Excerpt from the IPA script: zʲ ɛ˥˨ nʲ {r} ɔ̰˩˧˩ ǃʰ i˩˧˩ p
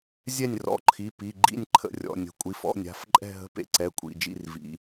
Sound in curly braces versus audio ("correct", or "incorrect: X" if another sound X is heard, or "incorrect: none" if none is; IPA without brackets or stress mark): correct